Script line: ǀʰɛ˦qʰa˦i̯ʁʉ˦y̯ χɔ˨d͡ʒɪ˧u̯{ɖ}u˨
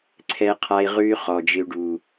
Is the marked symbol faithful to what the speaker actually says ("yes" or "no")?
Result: yes